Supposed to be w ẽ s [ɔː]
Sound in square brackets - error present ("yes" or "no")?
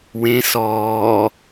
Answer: no